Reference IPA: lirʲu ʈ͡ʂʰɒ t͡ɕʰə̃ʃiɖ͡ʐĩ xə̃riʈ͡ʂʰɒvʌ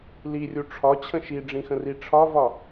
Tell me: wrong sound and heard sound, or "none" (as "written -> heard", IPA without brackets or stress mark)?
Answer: ʌ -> ɒ